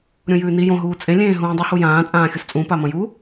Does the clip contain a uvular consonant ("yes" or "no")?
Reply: no